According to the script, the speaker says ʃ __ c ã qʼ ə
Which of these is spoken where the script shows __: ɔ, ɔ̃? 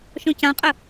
ɔ̃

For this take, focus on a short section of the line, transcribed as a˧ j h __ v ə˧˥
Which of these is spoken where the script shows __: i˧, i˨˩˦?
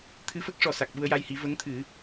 i˨˩˦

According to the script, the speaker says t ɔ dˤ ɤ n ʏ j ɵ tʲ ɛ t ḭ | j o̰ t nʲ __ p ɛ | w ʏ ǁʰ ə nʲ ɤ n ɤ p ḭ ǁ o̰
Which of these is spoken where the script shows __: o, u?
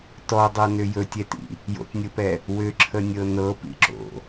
o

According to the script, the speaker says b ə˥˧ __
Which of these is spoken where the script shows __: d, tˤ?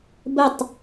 tˤ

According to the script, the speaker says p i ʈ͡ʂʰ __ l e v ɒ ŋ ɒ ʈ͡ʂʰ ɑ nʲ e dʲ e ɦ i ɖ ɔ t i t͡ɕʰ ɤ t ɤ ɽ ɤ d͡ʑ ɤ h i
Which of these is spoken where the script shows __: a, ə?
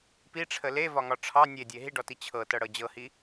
ə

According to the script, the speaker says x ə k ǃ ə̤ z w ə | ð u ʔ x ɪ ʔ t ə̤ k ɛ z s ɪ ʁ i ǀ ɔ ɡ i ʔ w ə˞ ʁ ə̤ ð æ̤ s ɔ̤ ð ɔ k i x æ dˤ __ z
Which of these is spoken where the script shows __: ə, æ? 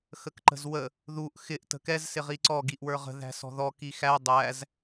æ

